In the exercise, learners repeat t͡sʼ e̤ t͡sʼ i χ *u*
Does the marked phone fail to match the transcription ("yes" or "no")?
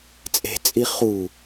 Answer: no